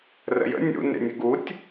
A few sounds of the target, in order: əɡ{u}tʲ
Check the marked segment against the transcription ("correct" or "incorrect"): correct